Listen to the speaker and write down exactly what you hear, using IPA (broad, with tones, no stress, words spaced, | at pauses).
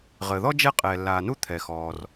ʁəː˩ðɔ˥ d͡ʒɛ˥qʼɛː˩lːaː˩nu˥ t̪ʰɛ˩xɔː˩r